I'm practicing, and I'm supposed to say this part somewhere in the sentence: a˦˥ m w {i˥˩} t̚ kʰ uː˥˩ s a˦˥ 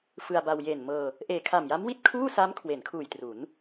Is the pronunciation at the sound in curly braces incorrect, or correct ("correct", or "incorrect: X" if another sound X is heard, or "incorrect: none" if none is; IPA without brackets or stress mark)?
incorrect: i˦˥